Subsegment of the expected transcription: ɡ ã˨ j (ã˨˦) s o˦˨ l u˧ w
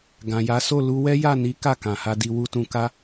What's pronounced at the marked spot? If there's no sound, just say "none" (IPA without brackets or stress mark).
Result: a˨˦